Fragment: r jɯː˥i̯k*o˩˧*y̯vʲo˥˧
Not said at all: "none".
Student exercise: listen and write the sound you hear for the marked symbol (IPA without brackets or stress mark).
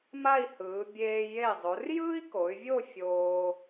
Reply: o˩˧